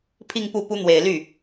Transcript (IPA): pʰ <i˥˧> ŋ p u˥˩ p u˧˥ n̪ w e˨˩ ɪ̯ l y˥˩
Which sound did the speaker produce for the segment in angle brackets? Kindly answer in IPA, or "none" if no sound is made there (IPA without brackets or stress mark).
i˥˧